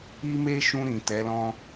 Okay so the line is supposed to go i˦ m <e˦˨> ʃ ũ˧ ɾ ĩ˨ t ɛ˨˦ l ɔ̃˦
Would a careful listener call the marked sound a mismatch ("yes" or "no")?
yes